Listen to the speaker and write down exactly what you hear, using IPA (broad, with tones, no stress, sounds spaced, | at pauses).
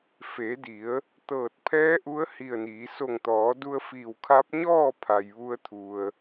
f e˩˧ d i˩˧ ə̯ | t̪ ɤː˧˩ t̚ pʰ ɛː˧˥ ʔ u˧˥ ə̯ h i˧˩ ə̯ n iː˩˧ s o˧˩ ŋ t̪ ɔː˩˧ d u˧ ə̯ f iː˧˩ w kʰ a˧˥ p̚ ɲ ɔː˥˨ pʰ a˩ j ʋ u˧ ə̯ t̪ʰ u˩ ə̯